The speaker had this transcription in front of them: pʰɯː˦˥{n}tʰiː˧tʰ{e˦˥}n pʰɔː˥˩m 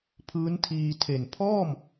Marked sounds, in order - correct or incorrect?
correct, incorrect

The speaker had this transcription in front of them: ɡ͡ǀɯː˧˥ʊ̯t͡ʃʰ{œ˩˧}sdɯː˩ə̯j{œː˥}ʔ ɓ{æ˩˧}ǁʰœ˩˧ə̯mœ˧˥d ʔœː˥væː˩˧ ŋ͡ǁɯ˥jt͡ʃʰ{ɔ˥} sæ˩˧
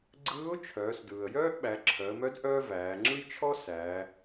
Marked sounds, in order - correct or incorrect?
incorrect, correct, correct, correct

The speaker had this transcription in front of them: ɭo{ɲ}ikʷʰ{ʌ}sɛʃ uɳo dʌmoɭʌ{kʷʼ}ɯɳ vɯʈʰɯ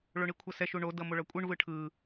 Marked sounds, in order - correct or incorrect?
incorrect, correct, correct

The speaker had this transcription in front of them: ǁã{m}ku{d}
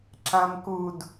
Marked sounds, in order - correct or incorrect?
correct, correct

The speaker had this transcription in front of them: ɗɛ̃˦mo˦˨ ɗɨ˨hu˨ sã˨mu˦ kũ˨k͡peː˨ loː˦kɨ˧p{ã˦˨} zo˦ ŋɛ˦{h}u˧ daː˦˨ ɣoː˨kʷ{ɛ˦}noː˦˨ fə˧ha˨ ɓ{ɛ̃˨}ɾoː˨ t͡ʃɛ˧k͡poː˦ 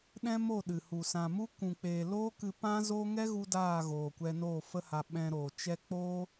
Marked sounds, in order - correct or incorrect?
incorrect, incorrect, incorrect, incorrect

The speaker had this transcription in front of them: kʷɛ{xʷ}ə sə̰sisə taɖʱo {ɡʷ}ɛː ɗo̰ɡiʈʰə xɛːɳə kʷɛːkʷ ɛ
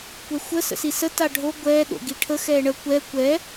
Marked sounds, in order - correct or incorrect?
correct, correct

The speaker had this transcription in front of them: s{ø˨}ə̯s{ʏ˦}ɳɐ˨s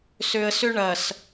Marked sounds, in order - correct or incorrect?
correct, correct

